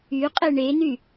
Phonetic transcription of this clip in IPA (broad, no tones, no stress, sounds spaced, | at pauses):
y qʼ e ɳ e n y